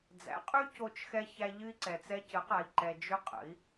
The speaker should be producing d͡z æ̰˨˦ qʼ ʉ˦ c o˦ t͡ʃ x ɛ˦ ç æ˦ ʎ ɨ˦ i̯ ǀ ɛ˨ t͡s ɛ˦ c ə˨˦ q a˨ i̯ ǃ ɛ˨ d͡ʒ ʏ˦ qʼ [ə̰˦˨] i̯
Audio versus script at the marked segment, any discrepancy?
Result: yes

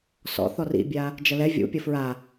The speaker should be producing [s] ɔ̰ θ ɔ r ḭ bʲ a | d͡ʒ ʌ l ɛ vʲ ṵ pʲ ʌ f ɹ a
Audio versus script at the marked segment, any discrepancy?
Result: no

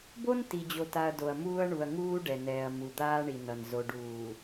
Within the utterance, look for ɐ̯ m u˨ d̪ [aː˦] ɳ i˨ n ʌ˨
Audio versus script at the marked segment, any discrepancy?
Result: no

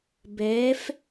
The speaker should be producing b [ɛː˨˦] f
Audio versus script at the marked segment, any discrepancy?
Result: no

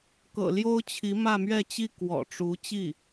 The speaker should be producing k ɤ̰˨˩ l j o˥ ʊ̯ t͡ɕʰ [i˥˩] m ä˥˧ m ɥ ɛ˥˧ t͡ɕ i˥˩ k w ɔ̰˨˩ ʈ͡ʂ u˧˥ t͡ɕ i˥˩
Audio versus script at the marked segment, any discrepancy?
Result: yes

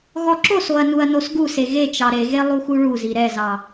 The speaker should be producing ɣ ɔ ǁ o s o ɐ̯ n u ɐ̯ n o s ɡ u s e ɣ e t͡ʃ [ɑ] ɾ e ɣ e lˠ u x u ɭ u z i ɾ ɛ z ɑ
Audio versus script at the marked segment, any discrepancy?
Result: no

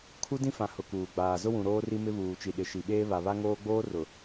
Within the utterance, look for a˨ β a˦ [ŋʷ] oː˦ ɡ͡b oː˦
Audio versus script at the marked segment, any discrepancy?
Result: yes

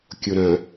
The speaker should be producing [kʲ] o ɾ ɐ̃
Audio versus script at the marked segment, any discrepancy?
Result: no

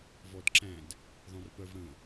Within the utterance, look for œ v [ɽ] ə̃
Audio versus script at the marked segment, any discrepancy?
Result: no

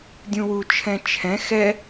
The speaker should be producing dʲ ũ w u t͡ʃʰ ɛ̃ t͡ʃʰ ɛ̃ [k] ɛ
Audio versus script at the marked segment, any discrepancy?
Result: yes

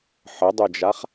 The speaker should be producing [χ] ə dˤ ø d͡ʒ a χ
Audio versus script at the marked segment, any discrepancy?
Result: yes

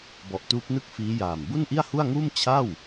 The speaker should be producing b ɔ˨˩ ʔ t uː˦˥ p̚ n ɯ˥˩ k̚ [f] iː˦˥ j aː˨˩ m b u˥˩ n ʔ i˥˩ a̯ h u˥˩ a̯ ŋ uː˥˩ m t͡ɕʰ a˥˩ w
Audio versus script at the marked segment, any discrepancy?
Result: no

